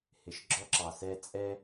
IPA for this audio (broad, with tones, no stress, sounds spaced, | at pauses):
h ɪ˨ ʃ ɡ͡ǁ ɔ˦ ǁ ɑ˨ s ɛ˦ t͡sʼ ɛ˦